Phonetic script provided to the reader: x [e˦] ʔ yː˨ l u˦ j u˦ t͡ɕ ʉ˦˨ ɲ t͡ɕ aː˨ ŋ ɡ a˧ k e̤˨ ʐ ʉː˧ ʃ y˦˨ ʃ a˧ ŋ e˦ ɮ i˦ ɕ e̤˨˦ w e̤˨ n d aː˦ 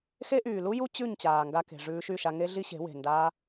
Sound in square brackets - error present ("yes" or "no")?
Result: no